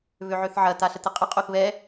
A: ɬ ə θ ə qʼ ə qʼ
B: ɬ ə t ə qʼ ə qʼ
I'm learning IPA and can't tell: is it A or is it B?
B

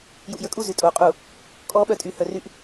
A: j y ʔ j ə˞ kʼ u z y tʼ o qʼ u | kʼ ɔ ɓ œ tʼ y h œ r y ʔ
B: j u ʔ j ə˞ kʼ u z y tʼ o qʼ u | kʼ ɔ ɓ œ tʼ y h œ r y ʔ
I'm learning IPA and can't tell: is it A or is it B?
B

